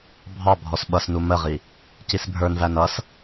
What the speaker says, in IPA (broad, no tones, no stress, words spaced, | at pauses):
bʱɑ bʱɔsɓʌs numəʁi | cisbʱə˞n vænʌs